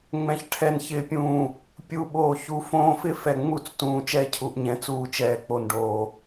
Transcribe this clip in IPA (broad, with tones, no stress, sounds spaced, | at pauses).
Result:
ŋ͡m ɛ̃˨ ç ʈʰ ɛ˨ n ç ɪː˨ pʲ ũː˨ | pʲ u˨ ɓ oː˨ ç u˨ f õː˦ f ɪ˦ f ɛ˨ ŋ͡m u˦˨ t͡s t ũː˨ t͡ʃ ɛː˦ cʰ u˨ ʔ ɲ ɛ̃˨˦ t͡s uː˨ t͡ʃ ɛː˨ k͡p o˨ n ɖ oː˨